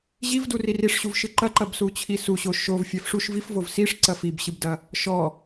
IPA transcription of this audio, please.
ʑ i v d u r i r i ʂ ɕ u v ʃ ɨ ǃ ɐ ǃ ɐ b s u t͡ɕʰ i s u ɕ o ʃ o v fʲ ɛ f ʂ u ʃ v i f v o v s i ʂ ǀ ɐ f i b ɕ ɨ b d ɐ | ʃ ɔ

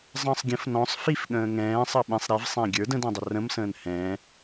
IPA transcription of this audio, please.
zˤ ə̃ː sˤ ɡʲ ə̃ f n ɔ̃ sˤ f i f ɠ ə̃ː ŋ ɛ̃ː sˤ ə ɓ ĩ sˤ ɾ i v sˤ ɛ̃ ɡʲ ə˞ d ə̃ d ĩ dˤ ə r ə̃ m s ə̃ː n h ɛ̃ː

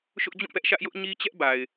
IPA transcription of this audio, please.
ʃ ʊ˦ ʔ d͡ʑ ũ˦˨ p ɛ˦ ʔ ʃ ä˦ ʔ j ʊ˦ ʔ ɲ i˦ t͡ɕ ɛ˦ ʔ b a˨ ɪ̯

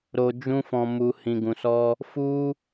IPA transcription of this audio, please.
ɾ o˧ d͡ʒ ũ˦ f ɔ̃˧ m u˧ h ĩ˧ ɡ ũ˧ s ɔ˦ | f u˦

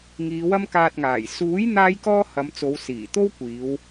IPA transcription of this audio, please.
ŋ iː˨˧ w ɐ˥ m k aː˧ t̚ ŋ aː˨˩ j s uː˨˥ j n̪ aː˥ j k ɔː˥ h ɐ˨˧ m t͡s o˨˧ w s iː˨˩ t̪ o˥ w kʷ iː˨˧ w

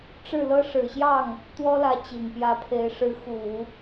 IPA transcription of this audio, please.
ʈ͡ʂ ɻ̩˥˩ l ɤ˥ ʂ ɻ̩˨˩ ɕ j ɑ˥˩ ŋ | t̪ w ɔ˥ l ä˧˥ t͡ɕ i˨˩ ŋ p j ä˧˥ pʰ e˧˥ ɪ̯ ʂ ɻ̩˧˥ x u˨˩˦

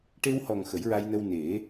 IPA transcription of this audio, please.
ʈ e˧ w h ɔ˨˩ ŋ x ə˨˩˦ j ɹ a˧ j n ə˧ w n e˨˩˦

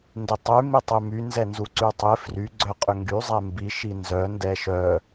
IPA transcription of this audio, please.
n d ɪ tˤ y m i tˤ ʏ m y n z ɛ n z u ǀ y tˤ ɪ f r y ɡ͡ǀ œ qʼ ʏ ŋ ɡ y zˤ ɛ m b i ʃ i n z œ n d ɛ ʃ œ

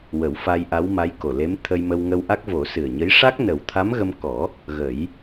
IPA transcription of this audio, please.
w ə˨˩˦ w f a˧ j ʔ a˧˥ w m a˧˥ j k o˨˩ l e˧˥ m t̪ʰ ə˧ j m ə˧ w ŋ ə˧ w ʔ a˦˥ k̚ v o˨˩˦ s ɨ˨˩ ə̯ ɲ ə˧˥ j ʂ a˦˥ k̚ n ə˨˩ w t̪ʰ a˧˥ m ɣ ə˧ m k ɔ˨˩˦ | ɣ ə˨˩˦ j

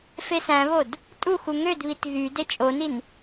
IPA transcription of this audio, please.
f e s æ̃ β o d | tʼ u x u ŋ ø d β i t ɣ y d e t͡ʃʼ o n i n

